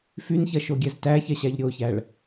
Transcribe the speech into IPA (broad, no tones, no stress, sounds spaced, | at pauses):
f y n ç ɐ ʃ o ɡʲ ɛ z t æ ç ɛ ɕ æ ʎ ɾʲ o ç æ ɭ